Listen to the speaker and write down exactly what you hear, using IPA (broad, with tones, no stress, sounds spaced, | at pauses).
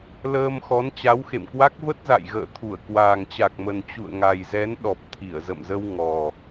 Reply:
l əː˧ m x ɔ˨˦ n t͡ɕ a˨˦ w x ḛ˧˨ m k w a˦˥ k̚ v ə˦˥ t̚ z a̰˧˨ j ɣ ə̰ː˧˨ t̪ʰ u˧˩ ə̯ k w aː˨˩ ŋ t͡ɕ a˨˩ k̚ m ə˨˩ n t͡ɕ ṵ˧˨ ə̯ ŋ a˨˩ j z ɛ˨˦ n ɗ ɔ˨˩ p̚ t̪ʰ i˧˩ ə̯ z ə̰˧˨ m z ə˧ w ŋ ɔ˨˩